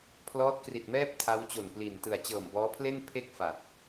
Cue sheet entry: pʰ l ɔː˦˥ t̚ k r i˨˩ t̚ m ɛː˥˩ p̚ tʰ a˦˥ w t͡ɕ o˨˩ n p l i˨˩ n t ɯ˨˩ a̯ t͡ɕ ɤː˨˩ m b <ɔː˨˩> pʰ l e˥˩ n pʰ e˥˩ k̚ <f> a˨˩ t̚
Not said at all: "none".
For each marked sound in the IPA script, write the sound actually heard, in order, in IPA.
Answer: ɔː˦˥, f

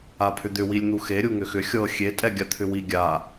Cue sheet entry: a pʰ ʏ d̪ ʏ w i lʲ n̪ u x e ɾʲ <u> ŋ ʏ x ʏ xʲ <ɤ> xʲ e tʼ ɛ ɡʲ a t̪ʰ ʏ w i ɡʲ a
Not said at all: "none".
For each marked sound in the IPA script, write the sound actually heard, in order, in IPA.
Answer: u, ɤ

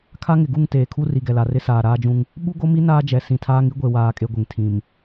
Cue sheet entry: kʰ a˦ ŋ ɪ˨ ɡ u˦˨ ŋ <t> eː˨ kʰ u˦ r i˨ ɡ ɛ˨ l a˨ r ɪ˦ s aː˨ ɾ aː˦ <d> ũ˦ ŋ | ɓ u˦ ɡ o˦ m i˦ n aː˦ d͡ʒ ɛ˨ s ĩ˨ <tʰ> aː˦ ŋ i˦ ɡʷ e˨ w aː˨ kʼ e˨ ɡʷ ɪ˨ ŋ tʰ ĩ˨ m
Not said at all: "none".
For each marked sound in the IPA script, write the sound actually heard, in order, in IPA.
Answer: t, d͡ʒ, tʰ

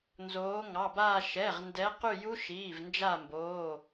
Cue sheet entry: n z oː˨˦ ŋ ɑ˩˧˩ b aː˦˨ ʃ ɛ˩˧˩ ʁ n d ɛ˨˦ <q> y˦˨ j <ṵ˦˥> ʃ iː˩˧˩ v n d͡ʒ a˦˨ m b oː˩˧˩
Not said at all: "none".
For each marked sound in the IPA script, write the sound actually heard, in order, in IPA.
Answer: q, u˦˥

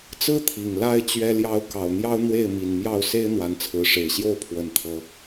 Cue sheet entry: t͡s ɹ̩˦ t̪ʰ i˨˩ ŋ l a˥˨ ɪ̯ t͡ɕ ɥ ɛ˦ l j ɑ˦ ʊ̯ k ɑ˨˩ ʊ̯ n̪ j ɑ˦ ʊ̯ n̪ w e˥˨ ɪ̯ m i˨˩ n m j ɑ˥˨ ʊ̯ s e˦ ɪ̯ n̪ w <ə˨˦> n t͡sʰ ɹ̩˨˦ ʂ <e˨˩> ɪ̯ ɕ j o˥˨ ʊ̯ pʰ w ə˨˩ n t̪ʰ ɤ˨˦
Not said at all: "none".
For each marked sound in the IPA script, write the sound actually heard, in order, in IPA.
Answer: a˨˦, e˨˩

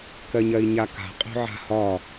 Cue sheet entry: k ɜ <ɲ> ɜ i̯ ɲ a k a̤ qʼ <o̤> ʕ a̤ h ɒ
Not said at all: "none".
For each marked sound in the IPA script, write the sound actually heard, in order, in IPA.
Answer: ɲ, o̤

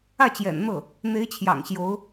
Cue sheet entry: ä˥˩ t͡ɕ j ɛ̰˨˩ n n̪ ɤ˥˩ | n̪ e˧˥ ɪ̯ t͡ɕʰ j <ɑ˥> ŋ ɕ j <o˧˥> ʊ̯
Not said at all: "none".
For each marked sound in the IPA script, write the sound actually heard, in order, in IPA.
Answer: ɑ̰˨˩, o˧˥

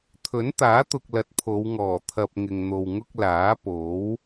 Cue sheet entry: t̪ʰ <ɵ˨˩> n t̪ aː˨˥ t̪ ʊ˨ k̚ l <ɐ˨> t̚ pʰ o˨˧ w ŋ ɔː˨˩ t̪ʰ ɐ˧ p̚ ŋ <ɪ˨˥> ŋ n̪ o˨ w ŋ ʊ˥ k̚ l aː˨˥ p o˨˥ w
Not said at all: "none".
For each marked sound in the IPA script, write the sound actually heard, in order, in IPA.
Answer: ɵ˨˥, ɐ˨, ɪ˨

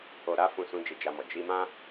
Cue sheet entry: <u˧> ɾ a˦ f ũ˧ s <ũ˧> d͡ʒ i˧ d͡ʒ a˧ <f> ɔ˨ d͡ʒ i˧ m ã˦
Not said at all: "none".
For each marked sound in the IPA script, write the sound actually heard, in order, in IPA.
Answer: o˧, ũ˧, m

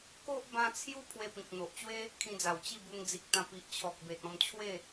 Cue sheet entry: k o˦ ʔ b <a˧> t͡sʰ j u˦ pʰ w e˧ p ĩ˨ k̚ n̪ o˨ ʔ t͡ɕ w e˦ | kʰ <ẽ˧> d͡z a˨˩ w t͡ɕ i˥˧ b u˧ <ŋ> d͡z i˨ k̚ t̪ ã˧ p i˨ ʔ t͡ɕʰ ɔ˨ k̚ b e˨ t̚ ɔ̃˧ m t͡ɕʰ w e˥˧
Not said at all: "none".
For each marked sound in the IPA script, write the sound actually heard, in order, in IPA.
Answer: ã˧, ĩ˧, ŋ

